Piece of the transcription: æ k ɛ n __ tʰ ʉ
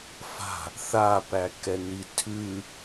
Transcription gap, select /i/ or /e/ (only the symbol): i